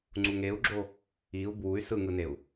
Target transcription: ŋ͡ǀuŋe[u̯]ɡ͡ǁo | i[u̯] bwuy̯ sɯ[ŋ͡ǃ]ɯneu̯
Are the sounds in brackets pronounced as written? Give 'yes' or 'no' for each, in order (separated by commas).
yes, yes, no